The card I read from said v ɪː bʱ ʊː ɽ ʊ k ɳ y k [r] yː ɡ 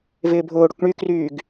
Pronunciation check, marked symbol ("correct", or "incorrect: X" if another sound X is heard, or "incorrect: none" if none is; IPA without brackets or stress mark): correct